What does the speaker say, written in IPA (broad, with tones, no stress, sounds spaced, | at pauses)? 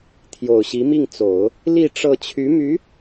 t̪ʰ j o˨˩ ʊ̯ ɕ i˧˥ m i˥˩ ŋ t͡s o˨˩˦ ʊ̯ | l i˥˧ ʈ͡ʂ ɤ˥˩ t͡ɕʰ y˧˥ m y˧˥